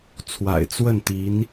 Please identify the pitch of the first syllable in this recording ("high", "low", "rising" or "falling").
low